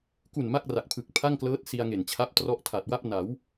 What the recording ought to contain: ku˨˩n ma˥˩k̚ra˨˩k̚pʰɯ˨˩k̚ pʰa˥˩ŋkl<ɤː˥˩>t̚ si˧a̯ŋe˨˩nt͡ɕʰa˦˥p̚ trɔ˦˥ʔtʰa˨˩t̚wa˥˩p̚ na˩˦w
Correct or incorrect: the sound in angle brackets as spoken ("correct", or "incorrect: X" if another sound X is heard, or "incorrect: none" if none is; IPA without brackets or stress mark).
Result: incorrect: ɤː˦˥